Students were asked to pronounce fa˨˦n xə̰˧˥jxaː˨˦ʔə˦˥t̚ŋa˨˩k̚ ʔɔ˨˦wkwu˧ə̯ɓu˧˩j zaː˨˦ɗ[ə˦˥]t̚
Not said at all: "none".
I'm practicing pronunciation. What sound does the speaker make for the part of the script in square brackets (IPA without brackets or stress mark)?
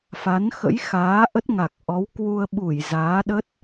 ə˦˥